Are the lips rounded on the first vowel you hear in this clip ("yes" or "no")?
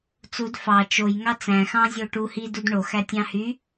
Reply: yes